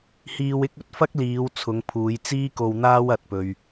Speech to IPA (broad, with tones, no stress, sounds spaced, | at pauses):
h iː˧ w ɪ˥ k̚ ɵ˨ t̚ f ɐ˥ k̚ l iː˨˧ w t͡sʰ ʊ˨˧ ŋ pʰ uː˨˧ j t͡s iː˥ k o˧ w n̪ aː˥ w ɐ˧ t̚ p ɵ˨ ɥ